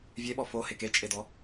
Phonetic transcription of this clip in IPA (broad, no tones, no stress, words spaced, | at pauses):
vʲeɓɔ fo heket͡ʃʼedɔ